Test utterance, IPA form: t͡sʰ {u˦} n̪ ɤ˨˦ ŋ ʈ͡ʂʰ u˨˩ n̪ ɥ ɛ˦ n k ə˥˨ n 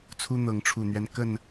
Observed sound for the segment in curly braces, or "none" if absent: u˦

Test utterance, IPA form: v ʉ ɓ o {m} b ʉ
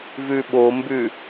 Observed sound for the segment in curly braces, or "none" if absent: m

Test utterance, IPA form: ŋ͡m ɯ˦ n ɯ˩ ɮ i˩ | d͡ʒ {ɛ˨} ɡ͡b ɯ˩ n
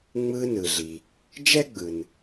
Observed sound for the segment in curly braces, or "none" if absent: ɛ˥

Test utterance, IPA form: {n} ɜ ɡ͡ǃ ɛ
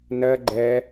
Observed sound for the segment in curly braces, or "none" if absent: n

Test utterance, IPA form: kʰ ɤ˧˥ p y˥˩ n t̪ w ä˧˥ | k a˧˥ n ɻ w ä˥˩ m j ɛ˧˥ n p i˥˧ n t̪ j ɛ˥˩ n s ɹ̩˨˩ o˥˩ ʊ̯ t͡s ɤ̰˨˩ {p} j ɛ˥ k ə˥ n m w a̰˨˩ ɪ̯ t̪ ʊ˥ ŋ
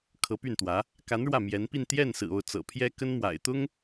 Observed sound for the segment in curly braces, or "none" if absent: pʰ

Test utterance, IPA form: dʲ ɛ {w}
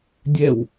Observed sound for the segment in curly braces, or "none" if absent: w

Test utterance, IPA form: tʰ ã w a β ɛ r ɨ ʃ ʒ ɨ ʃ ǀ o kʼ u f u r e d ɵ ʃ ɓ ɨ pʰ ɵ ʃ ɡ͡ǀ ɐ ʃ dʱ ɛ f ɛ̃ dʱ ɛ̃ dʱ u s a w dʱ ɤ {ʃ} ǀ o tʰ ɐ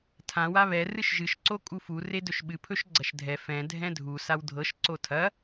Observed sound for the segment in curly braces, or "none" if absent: ʃ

